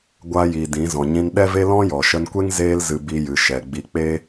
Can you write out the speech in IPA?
ɡʷ a˧ j i˨ d ĩ˨˦ z ɔ̃˨ ɲ ĩ˧ n ɗ ɛ˦ v e˦ l ɔ̃˦ j ɔ˨ ʃ ə˧ n kʷ e˦ ŋ z eː˧ l z ɨ˨ b i˧ j ɨ˨ ʃ ɛ˨ ɡ͡b i˧ k͡p e˦

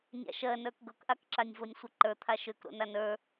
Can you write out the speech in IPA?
nʲ a̰ ʃ ɜ n ə˞ k ɡ ɤ k ʔ a k ǁ a nʲ v o nʲ sʷ ə ǃ ə˞ t̪ʰ a ʃ ø k ɾ o̰ n a n ə˞

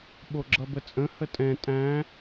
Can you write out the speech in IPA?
ɓ o ɡ͡ǁ ʌ b ə t͡sʼ ə̃ h ə tʼ ɛ̃ tʼ æ̃

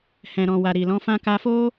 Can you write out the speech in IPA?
h ɛ̃˨ ɾ ɔ̃˨ w a˨ ɾ i˨ l ɔ̃˨˦ f ã˦ k a˧ f o˦

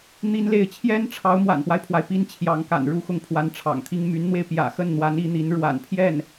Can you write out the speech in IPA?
n̪ i˥ n l e˥˩ ɪ̯ t͡ɕʰ j ɛ˥ n ʈ͡ʂʰ ɑ˧˥ ʊ̯ m w a̰˨˩ n p w a˦ ɪ̯ pʰ w a˩ ɪ̯ p i˥ n t͡ɕʰ j ɑ˧˥ ŋ k a̰˨˩ n ɻ u˧˥ x ʊ˥˩ ŋ pʰ w a˧˥ n ʈ͡ʂʰ ɑ̰˨˩ ŋ t̪ʰ i˥ ŋ m y˧˥ n n̪ w e˧ ɪ̯ p j ä̰˨˩ x ə˥˩ n n̪ w a˧˥ n i˧˥ n̪ i˧˥ n ɻ w a̰˨˩ n pʰ j ɛ˥˩ n

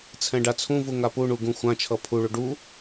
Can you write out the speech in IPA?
t͡sʰ ɛ̃ ɖ a t͡sʰ ũ v u ŋ a p u ɳ u ɡ ũ xʷ ã t͡ʃʰ ʌ pʰ u ɭ u ɖ u

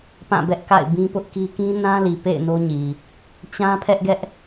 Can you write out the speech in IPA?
p ã˦˨ b ɛ˦ ʔ k a̰˦˨ ɪ̯ b ĩ˦ p ʊ˦ ʔ k i˦ k ĩ˦ n ã˦ l i˨ p ḛ˦˨ ɪ̯ n o˦ ɲ i˨ | t͡ɕ ã˦ pʰ ɛ˦ ʔ ɡ ɛ˦ ʔ

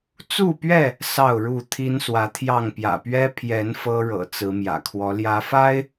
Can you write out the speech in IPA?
t͡s u˥˨ p ɥ ɛ˥˨ | s ɑ˥˨ ʊ̯ ɻ u˥˨ t̪ʰ i˦ n s w ä˨˦ t̪ʰ j ɑ˥˨ ŋ p j ä̰˨˩ p ɥ ɛ˦ pʰ j ɛ˨˦ n f ɤ˦ ɻ ɤ̰˨˩ t͡s ɹ̩˨˦ m j ä̰˨˩ kʰ w ɔ˨˦ l j ä˨˦ f a˦ ɪ̯

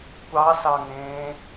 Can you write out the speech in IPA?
kʷ ɑ s ɑ ŋ ẽː

